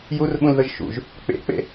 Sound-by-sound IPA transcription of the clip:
jurɓũlðəʒ ʃṵʒ | k͡pḛk͡pḛ

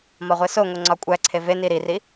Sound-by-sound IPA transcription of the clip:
mɒʁʷesoŋo ŋ͡ǀɒkʷʼæǀʰe veni ɾiri

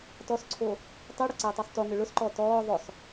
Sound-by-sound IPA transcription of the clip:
tɔsǀʰo | tˤiɽʊ ǀeʊ̯tˤisˤtoŋʏ ɭʊsǃɔ tɔː ðˤʊsˤ

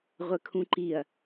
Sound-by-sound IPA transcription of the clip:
ʁʷɘkʰũǃiɐ̯

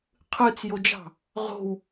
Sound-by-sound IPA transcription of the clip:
qʰɯt͡sjod͡ʒɑ̤ | ʁo̤w

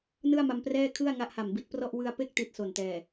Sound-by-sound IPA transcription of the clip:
nɯ˥˩a̯ma˧mprɛː˥˩ kʰɯ˥˩a̯ŋa˦˥ʔha˨˩m bi˦˥t̚prɔ˥˩ʔ wɯ˧a̯pe˥˩k̚ ti˦˥t̚so˨˩ntɛː˨˩

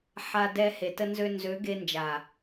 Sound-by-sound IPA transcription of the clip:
ħa˧ dɛ˧ he˨tə˧nzø˧ nzø˨˦ɡe˧nd͡ʒa˨

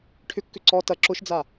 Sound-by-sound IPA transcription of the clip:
ʈʰʏkːʏ ǀɔ tɐ ǁʊʃd͡za

